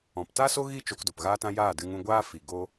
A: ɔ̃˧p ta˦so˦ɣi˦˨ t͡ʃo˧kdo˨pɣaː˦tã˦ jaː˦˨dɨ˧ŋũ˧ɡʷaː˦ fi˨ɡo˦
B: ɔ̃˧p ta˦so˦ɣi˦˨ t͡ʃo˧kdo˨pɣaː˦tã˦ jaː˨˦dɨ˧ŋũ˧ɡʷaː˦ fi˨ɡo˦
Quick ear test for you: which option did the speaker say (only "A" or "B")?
A